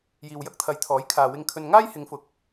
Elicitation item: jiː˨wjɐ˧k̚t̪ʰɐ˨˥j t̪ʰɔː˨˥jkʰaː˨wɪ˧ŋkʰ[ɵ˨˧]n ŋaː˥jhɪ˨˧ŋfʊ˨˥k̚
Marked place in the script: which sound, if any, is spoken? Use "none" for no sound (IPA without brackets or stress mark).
ɵ˧